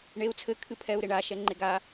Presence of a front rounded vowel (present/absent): absent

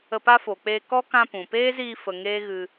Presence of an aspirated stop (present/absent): absent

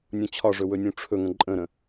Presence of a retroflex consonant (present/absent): present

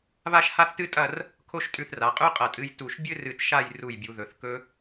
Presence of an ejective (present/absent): present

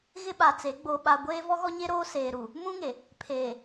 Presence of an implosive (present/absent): present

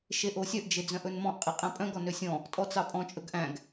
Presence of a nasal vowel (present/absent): present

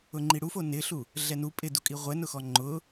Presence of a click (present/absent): present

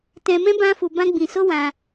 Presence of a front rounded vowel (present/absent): absent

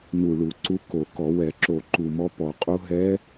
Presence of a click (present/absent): present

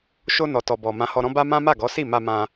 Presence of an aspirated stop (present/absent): absent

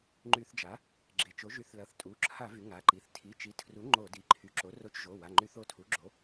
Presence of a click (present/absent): present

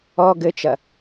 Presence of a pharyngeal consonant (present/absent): absent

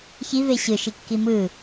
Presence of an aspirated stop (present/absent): absent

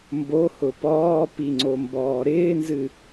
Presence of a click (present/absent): present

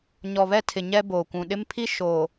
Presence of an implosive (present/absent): present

